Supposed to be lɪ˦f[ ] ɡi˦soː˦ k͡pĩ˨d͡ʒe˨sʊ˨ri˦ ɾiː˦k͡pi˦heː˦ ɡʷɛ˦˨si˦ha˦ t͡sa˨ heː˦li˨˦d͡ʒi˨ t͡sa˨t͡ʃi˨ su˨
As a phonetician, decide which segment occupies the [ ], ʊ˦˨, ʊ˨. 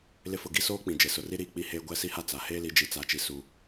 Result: ʊ˦˨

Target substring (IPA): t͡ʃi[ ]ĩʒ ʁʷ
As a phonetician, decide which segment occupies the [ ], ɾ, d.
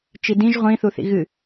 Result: d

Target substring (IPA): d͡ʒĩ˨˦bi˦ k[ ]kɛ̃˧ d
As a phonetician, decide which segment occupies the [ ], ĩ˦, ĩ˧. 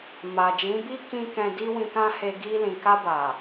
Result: ĩ˦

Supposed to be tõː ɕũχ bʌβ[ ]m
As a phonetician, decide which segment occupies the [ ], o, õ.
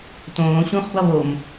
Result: o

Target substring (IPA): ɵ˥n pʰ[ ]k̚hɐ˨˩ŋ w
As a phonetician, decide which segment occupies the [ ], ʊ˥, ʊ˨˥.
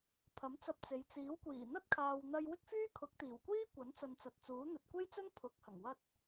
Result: ʊ˨˥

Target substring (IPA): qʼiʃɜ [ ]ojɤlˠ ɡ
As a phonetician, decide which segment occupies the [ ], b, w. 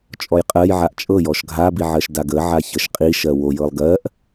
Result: w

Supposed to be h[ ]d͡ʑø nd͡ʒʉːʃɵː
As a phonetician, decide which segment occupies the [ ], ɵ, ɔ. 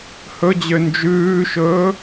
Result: ɵ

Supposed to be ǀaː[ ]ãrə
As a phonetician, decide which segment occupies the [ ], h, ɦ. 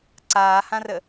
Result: h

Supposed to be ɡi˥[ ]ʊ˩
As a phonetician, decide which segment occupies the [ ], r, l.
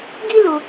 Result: l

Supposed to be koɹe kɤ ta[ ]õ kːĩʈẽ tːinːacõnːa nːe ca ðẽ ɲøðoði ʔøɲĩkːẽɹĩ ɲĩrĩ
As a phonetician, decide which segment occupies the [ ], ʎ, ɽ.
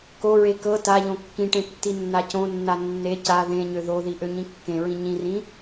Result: ʎ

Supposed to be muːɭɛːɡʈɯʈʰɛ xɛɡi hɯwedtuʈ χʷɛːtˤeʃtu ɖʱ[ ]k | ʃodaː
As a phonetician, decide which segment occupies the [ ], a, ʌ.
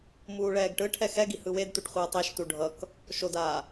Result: ʌ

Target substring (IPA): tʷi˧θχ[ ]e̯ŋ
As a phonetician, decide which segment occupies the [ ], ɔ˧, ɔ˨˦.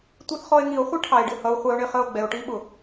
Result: ɔ˧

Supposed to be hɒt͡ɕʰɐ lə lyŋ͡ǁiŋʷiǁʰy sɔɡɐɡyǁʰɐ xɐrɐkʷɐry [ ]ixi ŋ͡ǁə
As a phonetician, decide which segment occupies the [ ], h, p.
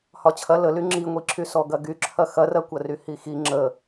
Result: h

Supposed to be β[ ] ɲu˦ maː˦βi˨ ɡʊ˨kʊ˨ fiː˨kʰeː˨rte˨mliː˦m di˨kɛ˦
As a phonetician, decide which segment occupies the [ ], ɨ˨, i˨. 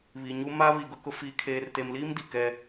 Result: i˨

